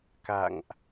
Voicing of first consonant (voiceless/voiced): voiceless